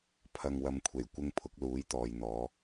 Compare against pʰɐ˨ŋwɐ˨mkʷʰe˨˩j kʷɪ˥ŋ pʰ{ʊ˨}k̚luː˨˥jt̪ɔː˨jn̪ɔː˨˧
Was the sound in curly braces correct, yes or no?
no